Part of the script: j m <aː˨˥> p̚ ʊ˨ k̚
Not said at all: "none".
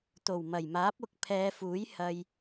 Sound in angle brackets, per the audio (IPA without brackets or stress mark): aː˨˥